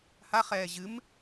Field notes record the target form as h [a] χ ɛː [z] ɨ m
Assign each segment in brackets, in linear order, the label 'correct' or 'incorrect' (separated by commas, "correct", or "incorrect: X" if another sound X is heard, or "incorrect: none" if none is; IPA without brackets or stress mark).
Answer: correct, incorrect: ʑ